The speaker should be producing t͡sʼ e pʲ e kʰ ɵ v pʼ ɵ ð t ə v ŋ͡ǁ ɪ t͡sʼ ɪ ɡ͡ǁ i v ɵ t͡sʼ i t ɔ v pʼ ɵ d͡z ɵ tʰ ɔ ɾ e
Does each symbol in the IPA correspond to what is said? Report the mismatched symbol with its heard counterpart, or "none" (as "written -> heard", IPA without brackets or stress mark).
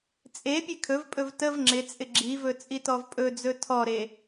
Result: ð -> v